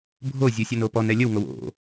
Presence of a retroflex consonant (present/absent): absent